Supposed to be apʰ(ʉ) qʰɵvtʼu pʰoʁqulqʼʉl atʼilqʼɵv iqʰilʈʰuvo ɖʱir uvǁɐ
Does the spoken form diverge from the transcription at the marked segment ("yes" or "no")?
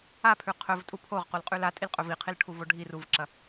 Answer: no